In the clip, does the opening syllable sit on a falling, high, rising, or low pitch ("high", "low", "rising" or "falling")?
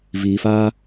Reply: low